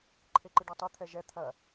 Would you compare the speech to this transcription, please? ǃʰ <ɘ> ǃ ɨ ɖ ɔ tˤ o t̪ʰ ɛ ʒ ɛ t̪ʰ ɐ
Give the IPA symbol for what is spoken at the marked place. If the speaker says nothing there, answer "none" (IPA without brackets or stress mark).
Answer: e